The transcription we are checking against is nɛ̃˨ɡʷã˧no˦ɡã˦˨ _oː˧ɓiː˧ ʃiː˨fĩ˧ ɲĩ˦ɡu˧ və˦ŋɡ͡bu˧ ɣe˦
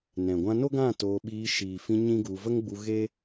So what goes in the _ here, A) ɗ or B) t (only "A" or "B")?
B